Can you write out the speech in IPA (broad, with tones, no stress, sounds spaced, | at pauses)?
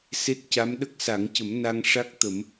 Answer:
s e˦˥ t̚ c a˧˥ m ɗ ə˦˥ k̚ s a˨˩˦ ŋ c ə˨˩˦ m n a˧ ŋ ʂ a˦˥ k̚ t̪ ə˨˩˦ m